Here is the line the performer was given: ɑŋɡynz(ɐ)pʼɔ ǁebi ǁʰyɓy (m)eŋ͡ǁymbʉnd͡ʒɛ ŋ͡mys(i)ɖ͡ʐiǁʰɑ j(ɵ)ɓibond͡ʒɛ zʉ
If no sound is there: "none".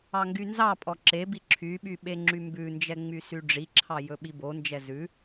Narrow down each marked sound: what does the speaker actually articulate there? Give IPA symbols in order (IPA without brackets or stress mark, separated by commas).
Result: ɑ, ɓ, y, ɵ